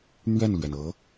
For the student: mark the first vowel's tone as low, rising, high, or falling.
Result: falling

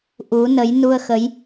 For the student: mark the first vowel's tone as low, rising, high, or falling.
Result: rising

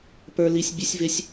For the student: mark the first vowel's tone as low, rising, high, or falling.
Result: high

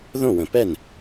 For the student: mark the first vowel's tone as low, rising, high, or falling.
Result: falling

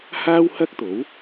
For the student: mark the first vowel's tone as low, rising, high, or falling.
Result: high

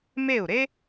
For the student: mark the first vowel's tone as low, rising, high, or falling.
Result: falling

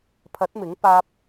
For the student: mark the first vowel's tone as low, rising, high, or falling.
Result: rising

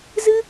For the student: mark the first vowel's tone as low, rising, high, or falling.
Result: high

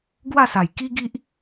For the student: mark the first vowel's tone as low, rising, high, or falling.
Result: falling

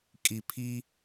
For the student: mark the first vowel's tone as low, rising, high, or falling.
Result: low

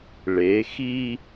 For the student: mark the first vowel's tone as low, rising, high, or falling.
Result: rising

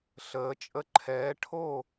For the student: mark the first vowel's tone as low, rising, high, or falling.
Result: rising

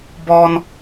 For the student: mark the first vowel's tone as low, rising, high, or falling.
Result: high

